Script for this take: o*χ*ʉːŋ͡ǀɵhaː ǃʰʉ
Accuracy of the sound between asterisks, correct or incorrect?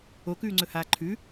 incorrect